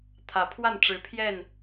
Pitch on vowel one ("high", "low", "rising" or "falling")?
rising